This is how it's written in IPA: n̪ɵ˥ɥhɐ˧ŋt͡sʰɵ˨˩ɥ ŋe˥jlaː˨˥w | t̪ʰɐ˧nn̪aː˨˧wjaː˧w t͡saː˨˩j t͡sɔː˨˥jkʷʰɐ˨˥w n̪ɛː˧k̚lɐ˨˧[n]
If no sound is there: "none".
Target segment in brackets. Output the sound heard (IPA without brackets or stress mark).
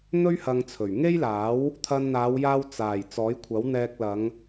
ŋ